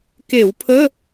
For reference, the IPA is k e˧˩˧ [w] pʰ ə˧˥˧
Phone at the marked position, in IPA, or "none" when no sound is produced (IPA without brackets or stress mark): w